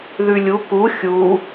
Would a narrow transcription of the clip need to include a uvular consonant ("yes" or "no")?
no